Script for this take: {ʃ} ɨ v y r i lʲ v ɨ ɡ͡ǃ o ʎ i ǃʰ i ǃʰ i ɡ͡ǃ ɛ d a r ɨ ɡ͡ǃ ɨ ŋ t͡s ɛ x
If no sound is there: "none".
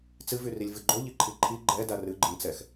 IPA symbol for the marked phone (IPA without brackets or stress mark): t͡s